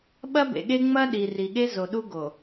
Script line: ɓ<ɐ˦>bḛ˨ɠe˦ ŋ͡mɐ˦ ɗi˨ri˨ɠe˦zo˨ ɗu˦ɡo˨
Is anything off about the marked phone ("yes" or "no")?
no